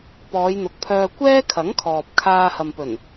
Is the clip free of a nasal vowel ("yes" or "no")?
yes